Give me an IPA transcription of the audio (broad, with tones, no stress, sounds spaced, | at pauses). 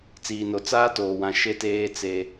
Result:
t͡s iː˨ n o˨ t͡s aː˦ t oː˨ w ã˨ ʃ e˦ t eː˦ t͡s e˦